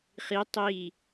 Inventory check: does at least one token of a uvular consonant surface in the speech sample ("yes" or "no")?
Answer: yes